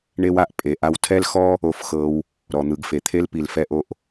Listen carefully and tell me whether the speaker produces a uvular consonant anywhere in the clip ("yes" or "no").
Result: no